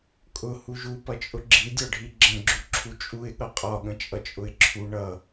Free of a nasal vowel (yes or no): no